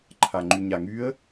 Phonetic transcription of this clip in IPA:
ǃʰ a ŋ͡ǃ y ɲ a ŋ y ə̯

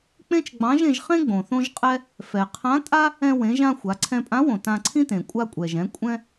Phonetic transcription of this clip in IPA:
k͡p ẽ˥ t͡ʃ ɡ͡b ɑ̃˧˥ ʒ ẽ˧ ʒ χ ẽ˥ ɡ͡b õ˩ θ õ˥ ʒ qʼ ɛ˥ | f ɛ˩ qʰ ã˧˥ tʼ a˥ | ɛ̃˧ w ẽ˩˧ ʒ ã˧ xʷ a˩˧ ǀʰ ɛ̃˧ pʼ ã˧˥ w õ˩ t ã˧ ǀʰ ĩ˥ t ẽ˩ kʷʼ a˧ kʷʼ ɛ˩ ʒ ɛ̃˩˧ kʷʼ ɛ̃˥

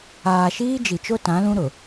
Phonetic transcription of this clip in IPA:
aː˨ ʃ iː˦ d͡ʒ i˨ t͡ʃ o˦ t ã˨˦ l ũ˦ ɾ ʊ˨

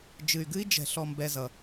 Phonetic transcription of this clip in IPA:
d͡ʒ ɨ˨ y̯ ɡ ɨ˦ i̯ d͡ʒ ɛ̤˨ ɬ ɔ˨ m b ɛ˨ z ʌ˨

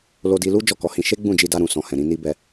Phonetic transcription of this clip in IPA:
l o˧ d i˧ l u˦ d͡ʒ ɔ˦˨ k ɔ˨˦ h ĩ˧ ʃ e˦ ɡ͡b ũ˦˨ d͡ʒ i˧ d a˧ ɾ ũ˨ s ɔ̃˨ h ɛ̃˨ ɾ ĩ˧ n i˦ b ɛ˧

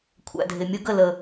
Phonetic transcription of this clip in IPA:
kʷʰ æ̰˨ dʱ ɪ˨ mʲ ʊ˦ ɡ ə˦˨ l ə˨

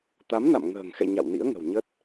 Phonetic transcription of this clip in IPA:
t̪ a˨˦ m n a̰˧˨ m ŋ ə̤ː˨˩ ŋ x ɛ̰˧˨ ɲ a̰˧˨ w n ḭ˧˥ ə̯ ŋ ə̤˨˩ w ɲ ə˦˥ t̚

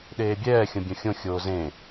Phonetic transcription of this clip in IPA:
ɗ eː bʲ ɛː xʲ õ bʲ õ xʲ õ xʲ oː z ẽ

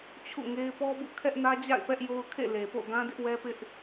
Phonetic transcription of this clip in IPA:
t͡ɕʰ ṵ˦˨ ŋ e˦ ɪ̯ p ɔ˦ b ṵ˦˨ kʰ ɛ˦ ʔ n ä˦ d͡ʑ a̰˦˨ ɪ̯ p ɛ˦ ʔ j o˦ ʊ̯ kʰ ḛ˦˨ l e˨ p o̰˦˨ ɡ ã˦ d ɪ˦ ʔ w ɛ˦ p ɪ˦ ʔ

